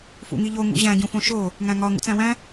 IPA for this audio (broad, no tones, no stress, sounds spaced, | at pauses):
f ṵ ŋ i ʎ o ŋ ṵ ʑ æ̃ ɟ ũ f õ ʃ o | ŋ æ̃ ŋ ɒ ŋ ṵ t͡s æ̃ w æ̃